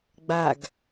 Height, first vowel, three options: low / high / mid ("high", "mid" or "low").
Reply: low